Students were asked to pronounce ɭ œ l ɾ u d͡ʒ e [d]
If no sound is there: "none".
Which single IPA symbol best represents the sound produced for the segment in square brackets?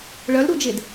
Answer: d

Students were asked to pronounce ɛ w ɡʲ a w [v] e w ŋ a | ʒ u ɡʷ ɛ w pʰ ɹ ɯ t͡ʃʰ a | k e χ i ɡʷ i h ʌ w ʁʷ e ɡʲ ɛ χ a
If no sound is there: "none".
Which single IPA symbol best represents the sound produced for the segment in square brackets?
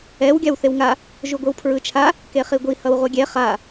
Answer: θ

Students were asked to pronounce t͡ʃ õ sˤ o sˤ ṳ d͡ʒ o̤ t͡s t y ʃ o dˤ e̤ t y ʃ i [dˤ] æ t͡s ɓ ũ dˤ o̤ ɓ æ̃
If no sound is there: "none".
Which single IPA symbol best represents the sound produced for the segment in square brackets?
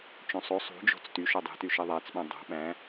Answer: ðˤ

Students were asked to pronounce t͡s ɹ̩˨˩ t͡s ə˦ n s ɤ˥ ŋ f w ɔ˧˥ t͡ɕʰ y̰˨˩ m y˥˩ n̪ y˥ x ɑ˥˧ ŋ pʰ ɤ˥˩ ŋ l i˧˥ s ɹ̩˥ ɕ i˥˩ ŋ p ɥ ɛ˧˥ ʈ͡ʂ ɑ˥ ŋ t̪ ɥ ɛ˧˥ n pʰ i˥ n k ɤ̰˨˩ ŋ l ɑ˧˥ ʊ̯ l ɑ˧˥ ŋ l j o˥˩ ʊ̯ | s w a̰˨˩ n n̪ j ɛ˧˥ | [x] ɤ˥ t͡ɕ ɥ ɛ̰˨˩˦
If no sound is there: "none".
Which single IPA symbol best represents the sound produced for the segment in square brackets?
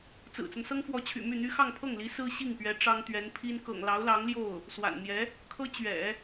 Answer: kʰ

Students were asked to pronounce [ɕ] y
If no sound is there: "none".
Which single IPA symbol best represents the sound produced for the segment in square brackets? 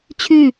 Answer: t͡ɕʰ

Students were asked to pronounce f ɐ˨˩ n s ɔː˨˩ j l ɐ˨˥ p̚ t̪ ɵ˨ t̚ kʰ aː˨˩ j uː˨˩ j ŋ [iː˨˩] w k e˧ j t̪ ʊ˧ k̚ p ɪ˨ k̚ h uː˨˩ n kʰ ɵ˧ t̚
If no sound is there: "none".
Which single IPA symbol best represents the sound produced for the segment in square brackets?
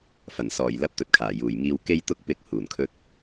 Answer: iː˧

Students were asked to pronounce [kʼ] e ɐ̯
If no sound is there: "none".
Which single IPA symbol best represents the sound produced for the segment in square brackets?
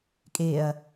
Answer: kʼ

